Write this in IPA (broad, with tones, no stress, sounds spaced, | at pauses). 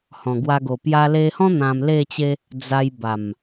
h ɔ̃˨˩ ɡ w a˧ ɡ o˨˩ p j a˧ l e˧ h ɔ̃˦ n̪ ã˧ m l e˥˧ t͡ɕ e˦ | d͡z a˧ j b a˨˩ m